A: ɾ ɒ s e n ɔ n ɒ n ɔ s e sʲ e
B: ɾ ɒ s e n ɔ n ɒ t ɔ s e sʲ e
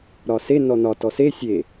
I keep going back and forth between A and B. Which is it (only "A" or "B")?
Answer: B